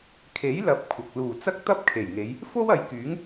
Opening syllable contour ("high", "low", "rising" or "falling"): rising